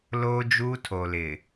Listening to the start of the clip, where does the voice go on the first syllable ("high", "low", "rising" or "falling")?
high